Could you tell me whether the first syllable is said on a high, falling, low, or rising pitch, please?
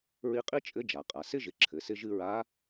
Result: rising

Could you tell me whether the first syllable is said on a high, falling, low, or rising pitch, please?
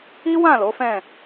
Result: high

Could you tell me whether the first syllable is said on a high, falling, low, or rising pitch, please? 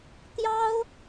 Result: high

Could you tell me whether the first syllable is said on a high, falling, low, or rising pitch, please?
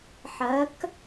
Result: rising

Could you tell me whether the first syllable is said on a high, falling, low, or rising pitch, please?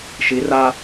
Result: rising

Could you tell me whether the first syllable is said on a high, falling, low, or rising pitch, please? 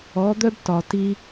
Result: rising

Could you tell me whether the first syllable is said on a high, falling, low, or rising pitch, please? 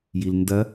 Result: low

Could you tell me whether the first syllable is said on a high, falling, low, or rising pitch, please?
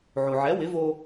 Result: low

